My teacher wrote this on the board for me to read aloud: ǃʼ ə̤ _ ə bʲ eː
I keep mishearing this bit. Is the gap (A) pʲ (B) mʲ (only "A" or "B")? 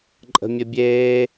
B